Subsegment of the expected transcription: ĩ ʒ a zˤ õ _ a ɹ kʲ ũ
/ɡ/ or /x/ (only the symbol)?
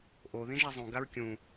ɡ